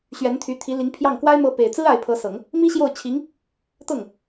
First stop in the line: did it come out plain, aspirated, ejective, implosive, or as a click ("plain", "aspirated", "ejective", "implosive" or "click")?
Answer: aspirated